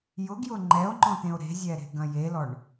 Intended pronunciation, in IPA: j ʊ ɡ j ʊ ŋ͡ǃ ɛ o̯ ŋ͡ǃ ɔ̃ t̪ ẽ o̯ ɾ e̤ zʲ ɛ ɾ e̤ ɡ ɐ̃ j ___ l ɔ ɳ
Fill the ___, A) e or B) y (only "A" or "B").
A